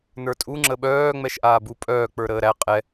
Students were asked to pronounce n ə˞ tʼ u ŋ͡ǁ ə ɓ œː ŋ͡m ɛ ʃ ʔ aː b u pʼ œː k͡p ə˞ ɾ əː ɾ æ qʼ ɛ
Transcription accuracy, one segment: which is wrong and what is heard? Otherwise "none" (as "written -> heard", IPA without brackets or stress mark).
none